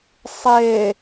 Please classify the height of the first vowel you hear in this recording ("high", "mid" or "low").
mid